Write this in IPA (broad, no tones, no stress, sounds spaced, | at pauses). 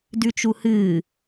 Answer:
d ʉ t͡ʃ u h ɨː